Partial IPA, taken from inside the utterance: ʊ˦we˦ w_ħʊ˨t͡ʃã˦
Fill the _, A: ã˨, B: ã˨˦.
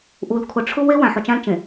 A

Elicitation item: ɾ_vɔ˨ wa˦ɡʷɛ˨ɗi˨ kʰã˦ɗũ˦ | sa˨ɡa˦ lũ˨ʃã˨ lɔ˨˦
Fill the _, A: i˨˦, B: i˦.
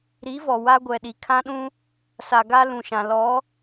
A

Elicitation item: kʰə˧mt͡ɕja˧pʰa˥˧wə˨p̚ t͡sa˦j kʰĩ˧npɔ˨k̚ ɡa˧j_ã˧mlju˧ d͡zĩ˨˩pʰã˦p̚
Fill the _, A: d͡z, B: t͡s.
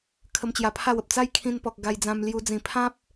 A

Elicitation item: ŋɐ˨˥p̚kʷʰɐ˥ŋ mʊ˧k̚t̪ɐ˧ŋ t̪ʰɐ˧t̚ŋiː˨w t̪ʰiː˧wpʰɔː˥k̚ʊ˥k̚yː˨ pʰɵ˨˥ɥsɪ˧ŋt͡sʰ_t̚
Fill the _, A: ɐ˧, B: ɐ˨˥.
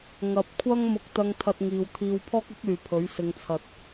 A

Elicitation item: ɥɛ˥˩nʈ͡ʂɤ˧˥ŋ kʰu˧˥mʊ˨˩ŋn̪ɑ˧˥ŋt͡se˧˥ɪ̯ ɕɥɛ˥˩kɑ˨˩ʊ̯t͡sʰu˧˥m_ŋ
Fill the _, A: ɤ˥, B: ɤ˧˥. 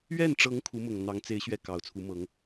B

